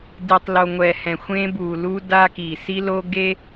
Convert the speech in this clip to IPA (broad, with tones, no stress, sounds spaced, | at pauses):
d i˨ tˤ l o˨ ŋʷ ɛ˨ h ɛ̃˨ xʷ ẽ˦ b u˨ l u˦ d a˦ k i˨ s i˦ l o˦ ɡ e˦